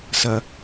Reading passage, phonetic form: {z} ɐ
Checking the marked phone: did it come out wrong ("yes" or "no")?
yes